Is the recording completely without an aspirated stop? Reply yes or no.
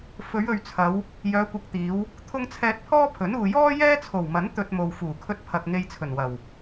no